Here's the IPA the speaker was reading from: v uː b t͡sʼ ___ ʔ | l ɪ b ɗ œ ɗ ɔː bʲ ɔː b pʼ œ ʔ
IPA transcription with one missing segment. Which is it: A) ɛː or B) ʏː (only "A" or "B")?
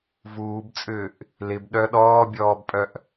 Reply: B